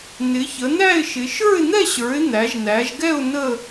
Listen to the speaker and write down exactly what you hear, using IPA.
n ɪ˨˦ ç ə˨˦ n æ˥˧ ɪ̯ ʃ ɪ˨˦ ʃ ə˞˥˧ ɪ̯ n̪ ɛ˥˧ ɕ ə˞˨˦ ɪ̯ n̪ æ˨˦ ʒ n æ˨˦ ʒ ɡ ɛ˥˧ ʊ̯ n ə˥˧

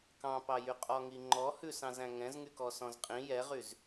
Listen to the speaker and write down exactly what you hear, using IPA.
k ɑ̃ p ɑ j y qʼ ɔ ŋ i ŋ͡ǃ ɔ h ʉ s ɑ̃ z æ̃ ŋ ɛ̃ z ŋ y k ɔ s ɔ̃ z qʼ ĩ j ɛ ʁ y z

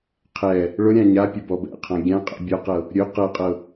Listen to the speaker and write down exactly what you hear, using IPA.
qʰ ɛ | ɭ ʊ ɾʲ ã ɲ a pʲ ʊ b ɔ b ɛ̰ qʰ ã ɡʲ ã qʼ ɛ̰ bʲ ɔ q ɤ | ɾʲ ɵ q ɤ qʼ ɤ

